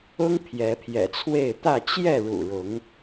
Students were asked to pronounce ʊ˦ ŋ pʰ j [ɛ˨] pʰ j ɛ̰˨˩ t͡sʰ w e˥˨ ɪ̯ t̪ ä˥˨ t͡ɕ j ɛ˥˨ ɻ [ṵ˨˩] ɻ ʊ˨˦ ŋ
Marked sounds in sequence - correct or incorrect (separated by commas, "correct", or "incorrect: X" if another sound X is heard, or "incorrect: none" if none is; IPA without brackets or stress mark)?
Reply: incorrect: ɛ˨˦, correct